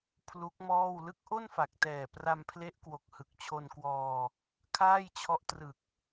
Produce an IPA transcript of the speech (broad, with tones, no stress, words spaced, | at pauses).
pʰlu˦˥k̚mɔː˥˩w lɯ˦˥k̚ʔo˥˩nfa˨˩k̚tɛː˨˩ pra˧mpʰle˦˥ʔkwo˨˩k̚ hɯ˨˩k̚t͡ɕʰo˧nkwɔː˧ | kʰaː˥˩jt͡ɕʰɔ˦˥ʔtrɯ˨˩k̚